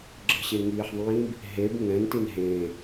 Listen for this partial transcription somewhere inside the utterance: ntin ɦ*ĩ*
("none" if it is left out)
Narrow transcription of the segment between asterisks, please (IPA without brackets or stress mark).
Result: ẽ